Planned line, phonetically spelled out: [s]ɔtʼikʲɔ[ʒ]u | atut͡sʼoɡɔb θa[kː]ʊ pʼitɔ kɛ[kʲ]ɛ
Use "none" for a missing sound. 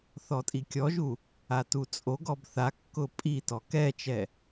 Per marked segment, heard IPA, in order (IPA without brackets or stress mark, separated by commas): θ, ʒ, kː, t͡ʃ